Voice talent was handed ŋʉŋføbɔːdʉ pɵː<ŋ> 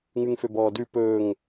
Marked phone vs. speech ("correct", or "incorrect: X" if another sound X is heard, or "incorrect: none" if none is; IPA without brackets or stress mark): correct